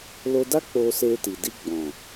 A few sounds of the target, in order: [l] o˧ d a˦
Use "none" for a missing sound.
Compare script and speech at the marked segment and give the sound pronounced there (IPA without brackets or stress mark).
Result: l